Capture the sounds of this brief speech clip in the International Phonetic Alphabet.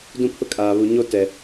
dũ˦pʰʊ˦kʼaː˨ βu˨ɲo˦ tɛ˨

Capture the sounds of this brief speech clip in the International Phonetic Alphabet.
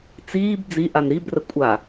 t͡siːb d͡ziʔan ɾibrə kʷʼa

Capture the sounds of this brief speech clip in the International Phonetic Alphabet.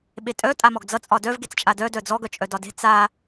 ɓetʼœ tʼamɔɡd͡zʌ t͡sʼɒdœv ɡet͡st͡ʃʼadœ dœd͡zɔ ɡœt͡ʃʼœdɒde̤ t͡sa

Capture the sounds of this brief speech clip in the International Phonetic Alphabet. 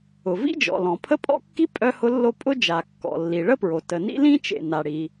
ʊ˩ vḭ˥d͡ʒɔ̰˩lɔ̃˩ pʰə˥pʼɔ̰˥kːi˥ pʼœ˥hʊ˥lːo˥ pʼʊ˥ d͡ʒa˩kːɔ̰˩ lːi˩ɭə˥pɹo˩ tə˩nḭ˥lĩ˥ t͡ʃḛ˩ na˩ɽi˩

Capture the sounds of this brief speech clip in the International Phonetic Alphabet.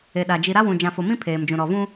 e˨ɗa˨ d͡ʒi˨ɾa˦wũ˨ d͡ʒã˨fo˨mĩ˦ pʰeː˨md͡ʒũ˨ ɾɔ˨vũ˦

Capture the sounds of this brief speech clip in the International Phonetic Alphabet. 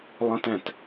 lˠə̃˧tɛ̃˩t

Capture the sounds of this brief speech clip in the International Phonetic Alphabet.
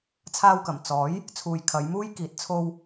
t͡sʰaː˧wkɐ˨˩m t͡sɔː˨˥j | t͡sʰuː˨jkʰɐ˨˧jmuː˥jkiː˨t̚ t͡sʰo˧w

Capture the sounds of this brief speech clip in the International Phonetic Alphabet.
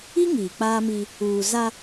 i˦ ŋiː˨k͡paː˦mi˦ | uː˨za˦

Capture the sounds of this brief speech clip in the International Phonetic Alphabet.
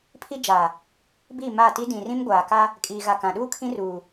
pʰi˦d͡ʒa˨ | bi˦˨ma˦˨ti˦ dĩ˨ rĩ˦mɡʷaː˨ka˦ | kʼiː˨ɣa˨ kã˨ɗuː˦ kʰĩ˦ruː˨

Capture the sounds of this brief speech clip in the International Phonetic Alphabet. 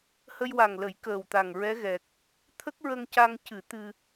hə˧jwa˨˩ŋlə˨˩˦j kəː˨˩wt̪a˨˩ŋ ɹɛ˧˥ɣɛ˨˩k̚ | t̪ʰə˦˥k̚ɹə˧ŋca˧ŋ cɨ˨˩˦ t̪ɨ˧

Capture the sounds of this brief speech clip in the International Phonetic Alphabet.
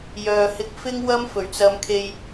jœː˨hɪ˧k̚ fɪ˥ŋ wɐ˥m fɵ˨˩ɥt͡sɐ˧mkʰe˧j

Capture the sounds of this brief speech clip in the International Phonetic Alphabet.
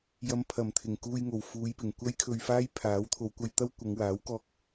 jɐ˨˧mpʰɐ˨˩mt̪ʰɪ˨˩ŋ kuː˧jŋo˨˩w fuː˨˧jpɪ˨˩ŋ kʷɐ˥jkʰɵ˧ɥfaː˥jpʰaː˨˥w t̪ʰo˨˧wkʷɐ˧jt̪ɐ˥w kʷɐ˨˧ŋwaː˨˥wkɔː˧k̚

